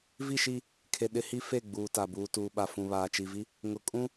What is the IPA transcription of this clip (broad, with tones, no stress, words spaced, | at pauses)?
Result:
vi˦˨ʃi˦˨ | kʰe˨ ɗɪ˦hi˦ fe˦˨ɡ͡buː˨ta˨ buː˨tuː˨ɓa˨ fũ˨βaː˨t͡ʃi˨vi˦ | ŋʊ˨kʼũ˦